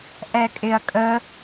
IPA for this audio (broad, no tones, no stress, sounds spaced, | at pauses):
ʔ ɛ kʼ ɪ ɐ̯ kʼ ə